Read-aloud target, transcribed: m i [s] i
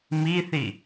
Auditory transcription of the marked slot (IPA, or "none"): θ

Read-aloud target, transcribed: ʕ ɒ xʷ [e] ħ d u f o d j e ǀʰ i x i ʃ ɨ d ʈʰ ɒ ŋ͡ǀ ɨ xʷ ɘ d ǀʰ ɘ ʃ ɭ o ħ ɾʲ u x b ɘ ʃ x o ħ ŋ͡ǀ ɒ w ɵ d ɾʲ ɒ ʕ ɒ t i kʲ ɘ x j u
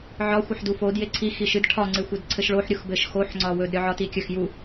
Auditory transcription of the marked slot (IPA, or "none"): ɘ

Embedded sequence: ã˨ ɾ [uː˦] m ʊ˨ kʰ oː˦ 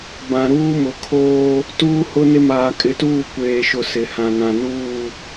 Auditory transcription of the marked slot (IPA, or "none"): uː˦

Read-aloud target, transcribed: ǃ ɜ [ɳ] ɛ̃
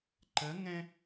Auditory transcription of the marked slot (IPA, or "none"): ŋ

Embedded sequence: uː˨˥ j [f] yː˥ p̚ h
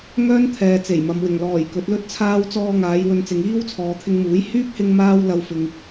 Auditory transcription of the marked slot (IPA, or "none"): h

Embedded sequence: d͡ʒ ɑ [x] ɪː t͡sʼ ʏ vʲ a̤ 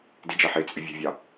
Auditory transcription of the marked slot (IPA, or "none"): ħ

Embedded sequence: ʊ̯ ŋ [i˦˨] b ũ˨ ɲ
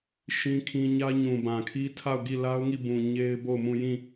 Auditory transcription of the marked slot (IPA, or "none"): i˦˨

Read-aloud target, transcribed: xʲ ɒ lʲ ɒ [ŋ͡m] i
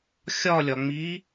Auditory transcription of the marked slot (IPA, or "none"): ŋ͡m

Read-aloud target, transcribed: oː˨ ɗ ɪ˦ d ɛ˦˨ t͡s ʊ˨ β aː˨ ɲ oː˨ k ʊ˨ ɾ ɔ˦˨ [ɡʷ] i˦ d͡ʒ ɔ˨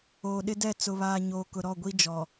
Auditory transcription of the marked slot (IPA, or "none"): ɡʷ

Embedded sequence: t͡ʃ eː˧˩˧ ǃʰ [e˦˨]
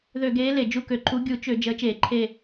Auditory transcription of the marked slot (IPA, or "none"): e˦˨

